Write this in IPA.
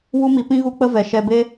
w u˦ m i˧ p ĩ˦ ɣ u˦ k͡p ə˦ v ɛ˨ ʃ ɛ˧ b e˦

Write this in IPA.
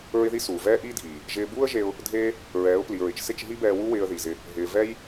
ɹ ɪ˦ ð i˦ s uː˨ v ɛː˦ ʔ iː˦ dʱ iː˨ | ʒ ɪː˧ b uː˦ ə̯ ʒ e˧ ʊ̯ | dʱ eː˦ | ɹ ɛː˨˦ ʊ̯ p l i˨ ɹ ɪ˨ t͡ʃ s ɪ˦˨ t͡ʃ ɦ i˦ b ɛː˧ w u˦ w ɪː˧ ə̯ ð i˨ z ɪ˧ | ɦ ɪː˨ v ɛ˦ j

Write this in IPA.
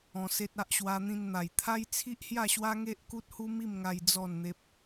ɔ̃˧ s e˦ t̚ a˦ ʔ ɕ w a˧ n̪ ĩ˧ n n̪ a˨˩ j t̪ʰ a˦ j t͡sʰ i˦ ʔ h j a˥˧ ɕ w a˦ ŋ e˦ ʔ k u˦ t̚ h u˦ m i˥˧ m ŋ a˧ j d͡z ɔ˥˧ n n̪ e˦ p̚

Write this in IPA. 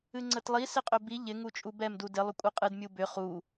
ɨ ŋ͡ǀ ə t lˠ i s ɪ qʼ ʏ b i ʎ ɪ ŋ u t͡ʃʼ u b ɛ m d u d ɪ lˠ ʏ kʷʼ ɨ qʼ ɨ d mʲ u b ʏ χ u

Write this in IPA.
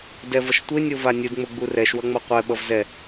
d ɛ v ʌ ʃ tʷ e nʲ o v a nʲ ɯ d ŋ͡m o ɡ͡b u r ɛ ʃ w ʌ ŋ͡m ʌ qʷ ɛ ɓ ʌ v z ɛ

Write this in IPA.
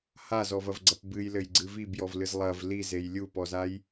h a z ɔ v ɐ v ɡ͡ǀ ɐ p b ɨ j l ɘ j ɡ͡ǀ ɨ v i b j ɔ v l ɨ z lˠ ɐ v l i z e j lʲ u p ɔ z a j

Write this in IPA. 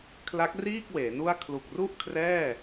kʰ l a˦˥ k̚ r iː˥˩ k̚ w eː˩˦ n u˥˩ a̯ kʰ l u˨˩ k̚ r u˥˩ ʔ kʰ r ɛː˥˩

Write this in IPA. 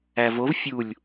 æ v o v fʲ u lʲ

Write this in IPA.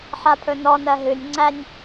ħ a pʰ ɵ n ɔ n ɜ ɦ ɨ nʲ ŋ͡ǀ æ nʲ

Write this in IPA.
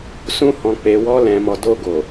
s ũ˧ h ɔ̃˨ k͡p e˨ w ɔ˧ l ɛ̃˨ m ɔ˨ d o˧ ɡ o˨

